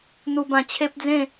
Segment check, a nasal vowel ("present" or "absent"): present